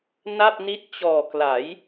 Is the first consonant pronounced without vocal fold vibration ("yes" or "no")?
no